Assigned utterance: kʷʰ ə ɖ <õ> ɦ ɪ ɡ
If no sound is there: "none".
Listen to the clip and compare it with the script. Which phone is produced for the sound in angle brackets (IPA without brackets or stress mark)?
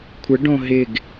õ